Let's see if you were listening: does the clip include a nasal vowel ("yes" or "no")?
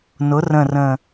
yes